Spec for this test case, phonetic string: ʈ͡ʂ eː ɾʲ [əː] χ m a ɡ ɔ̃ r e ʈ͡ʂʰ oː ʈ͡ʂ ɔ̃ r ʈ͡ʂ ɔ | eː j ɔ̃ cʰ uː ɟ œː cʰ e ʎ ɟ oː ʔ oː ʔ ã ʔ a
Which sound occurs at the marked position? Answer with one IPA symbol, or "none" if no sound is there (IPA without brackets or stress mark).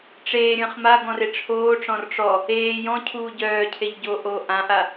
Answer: ə̃ː